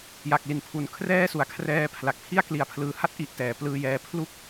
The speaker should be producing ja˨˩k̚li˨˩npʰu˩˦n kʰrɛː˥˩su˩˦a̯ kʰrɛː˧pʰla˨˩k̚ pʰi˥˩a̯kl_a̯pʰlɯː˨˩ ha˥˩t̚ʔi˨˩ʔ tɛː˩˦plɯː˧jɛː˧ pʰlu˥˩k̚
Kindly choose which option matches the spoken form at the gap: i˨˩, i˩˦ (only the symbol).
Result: i˨˩